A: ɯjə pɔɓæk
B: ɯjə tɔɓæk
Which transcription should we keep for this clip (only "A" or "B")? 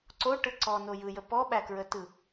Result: A